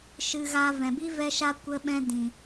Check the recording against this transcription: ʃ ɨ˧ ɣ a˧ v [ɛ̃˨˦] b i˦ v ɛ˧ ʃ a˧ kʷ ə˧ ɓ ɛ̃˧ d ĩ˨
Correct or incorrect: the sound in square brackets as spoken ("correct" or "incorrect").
incorrect